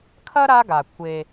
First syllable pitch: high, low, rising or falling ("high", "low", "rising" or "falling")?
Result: high